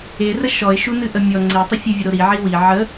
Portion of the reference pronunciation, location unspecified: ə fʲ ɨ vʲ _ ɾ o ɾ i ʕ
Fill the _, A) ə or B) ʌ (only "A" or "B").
A